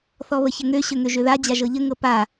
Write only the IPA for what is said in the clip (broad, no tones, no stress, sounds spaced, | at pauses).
θ ɔ β ə ç ə ŋ ø ɕ ø ŋ ø ʒ ø ð a d͡ʑ a ʒ ɤ ʎ ə ŋ ɤ p a